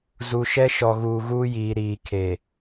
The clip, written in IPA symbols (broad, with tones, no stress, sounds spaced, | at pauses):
z u˨ ʃ ɛ˦ ʃ ɔ˨ ɣ uː˨ ɣ uː˦ j iː˨ ɾ iː˨ kʰ e˨